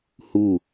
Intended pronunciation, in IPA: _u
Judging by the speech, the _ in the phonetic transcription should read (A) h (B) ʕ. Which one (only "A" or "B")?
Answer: A